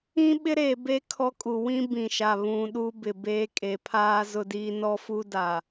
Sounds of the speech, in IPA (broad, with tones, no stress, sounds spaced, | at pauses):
ĩ˦ ɓ ɪ˦ ɾ e˨ b e˦ kʰ ɔ˦ kʼ u˨ w ĩ˦ b ĩ˨ ʃ a˨ β ũ˨ ɗ u˦ b ɪ˨ b eː˦ kʼ e˨ pʰ aː˦ z ʊ˦ d iː˦ n ɔ˦ f u˦ d a˨